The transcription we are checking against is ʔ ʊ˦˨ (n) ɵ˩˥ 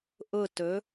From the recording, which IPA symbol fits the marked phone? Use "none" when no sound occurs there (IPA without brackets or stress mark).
t